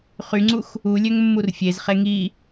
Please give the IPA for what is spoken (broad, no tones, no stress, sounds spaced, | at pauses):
χ y ŋ͡ǀ u x | u lʲ ø ŋ mː u r fʲ e z χ e ŋ i